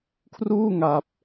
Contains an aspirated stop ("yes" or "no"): yes